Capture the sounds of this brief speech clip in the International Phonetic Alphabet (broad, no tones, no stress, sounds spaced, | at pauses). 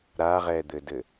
ɾ a ʁ ɛ d̪ ɘ d ɘ